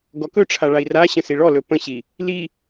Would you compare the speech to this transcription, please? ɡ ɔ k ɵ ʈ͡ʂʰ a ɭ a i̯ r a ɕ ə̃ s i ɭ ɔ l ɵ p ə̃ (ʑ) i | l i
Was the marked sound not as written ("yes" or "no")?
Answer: yes